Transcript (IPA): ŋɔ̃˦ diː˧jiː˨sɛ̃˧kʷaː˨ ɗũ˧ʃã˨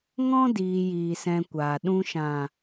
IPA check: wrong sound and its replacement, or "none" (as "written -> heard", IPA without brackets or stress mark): none